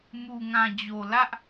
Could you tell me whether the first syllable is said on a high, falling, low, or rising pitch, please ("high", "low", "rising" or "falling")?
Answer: low